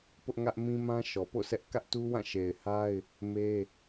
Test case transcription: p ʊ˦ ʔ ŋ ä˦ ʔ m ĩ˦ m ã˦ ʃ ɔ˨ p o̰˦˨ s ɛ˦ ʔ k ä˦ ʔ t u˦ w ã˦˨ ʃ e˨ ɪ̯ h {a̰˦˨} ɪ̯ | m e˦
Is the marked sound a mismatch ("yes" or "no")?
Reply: yes